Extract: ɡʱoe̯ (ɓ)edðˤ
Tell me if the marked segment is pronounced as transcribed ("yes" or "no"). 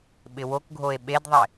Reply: yes